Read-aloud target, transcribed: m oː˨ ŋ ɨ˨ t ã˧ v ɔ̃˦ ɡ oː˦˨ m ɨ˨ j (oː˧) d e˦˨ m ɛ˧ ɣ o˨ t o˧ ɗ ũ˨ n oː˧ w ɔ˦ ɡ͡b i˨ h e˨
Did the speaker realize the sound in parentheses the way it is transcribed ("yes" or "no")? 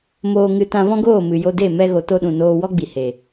no